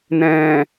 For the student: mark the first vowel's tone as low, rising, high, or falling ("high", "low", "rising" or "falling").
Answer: low